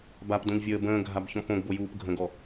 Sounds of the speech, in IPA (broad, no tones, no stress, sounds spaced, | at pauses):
b a p d õ ʎ vʲ əː b ə̃ː ɡʱ a b ç ɔ̃ p õ ɡ b o j uː p ɡʱ ə̃ ɡ ɔ